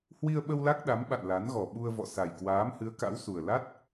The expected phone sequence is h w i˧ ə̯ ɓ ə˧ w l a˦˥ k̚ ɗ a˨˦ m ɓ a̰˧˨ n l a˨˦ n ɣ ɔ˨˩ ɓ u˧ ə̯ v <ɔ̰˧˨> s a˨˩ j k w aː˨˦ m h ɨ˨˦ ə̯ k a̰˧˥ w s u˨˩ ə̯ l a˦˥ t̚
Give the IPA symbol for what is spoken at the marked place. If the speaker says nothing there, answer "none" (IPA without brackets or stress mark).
ɔ̰˧˨